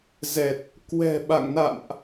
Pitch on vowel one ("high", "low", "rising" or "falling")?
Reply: low